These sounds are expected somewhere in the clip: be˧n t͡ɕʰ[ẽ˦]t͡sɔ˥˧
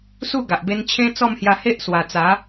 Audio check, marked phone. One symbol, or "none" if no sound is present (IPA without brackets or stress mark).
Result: ẽ˦